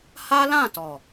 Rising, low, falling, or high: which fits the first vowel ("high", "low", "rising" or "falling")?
high